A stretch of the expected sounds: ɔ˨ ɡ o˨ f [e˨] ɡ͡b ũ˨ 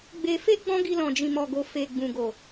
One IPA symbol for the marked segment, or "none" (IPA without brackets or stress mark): e˨